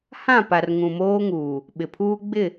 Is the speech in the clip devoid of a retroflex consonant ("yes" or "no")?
yes